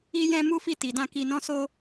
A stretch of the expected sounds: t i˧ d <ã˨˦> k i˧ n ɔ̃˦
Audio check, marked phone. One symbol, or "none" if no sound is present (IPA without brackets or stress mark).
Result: ã˦